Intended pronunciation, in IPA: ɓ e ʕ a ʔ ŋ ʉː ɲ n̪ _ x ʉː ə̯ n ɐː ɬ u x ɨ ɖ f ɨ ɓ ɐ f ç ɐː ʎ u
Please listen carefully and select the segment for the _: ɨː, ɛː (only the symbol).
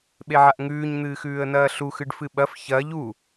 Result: ɨː